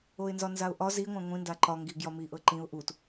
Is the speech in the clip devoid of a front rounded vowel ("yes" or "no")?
yes